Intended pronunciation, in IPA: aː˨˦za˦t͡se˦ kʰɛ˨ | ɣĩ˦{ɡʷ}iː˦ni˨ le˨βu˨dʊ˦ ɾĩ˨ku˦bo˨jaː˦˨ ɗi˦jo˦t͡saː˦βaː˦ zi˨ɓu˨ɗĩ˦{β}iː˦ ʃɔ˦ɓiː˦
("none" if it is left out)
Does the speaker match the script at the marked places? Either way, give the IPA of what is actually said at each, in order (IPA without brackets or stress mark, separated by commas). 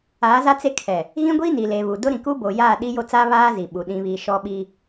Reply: ɡʷ, β